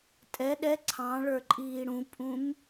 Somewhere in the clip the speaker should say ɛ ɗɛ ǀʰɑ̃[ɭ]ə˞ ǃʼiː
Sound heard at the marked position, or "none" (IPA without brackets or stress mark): ɭ